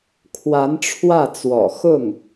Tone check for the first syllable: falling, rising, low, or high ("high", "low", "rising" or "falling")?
rising